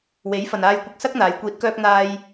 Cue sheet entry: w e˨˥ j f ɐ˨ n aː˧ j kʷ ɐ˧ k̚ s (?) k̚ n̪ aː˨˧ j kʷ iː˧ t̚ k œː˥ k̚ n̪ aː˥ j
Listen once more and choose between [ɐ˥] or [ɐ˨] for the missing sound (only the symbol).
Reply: ɐ˥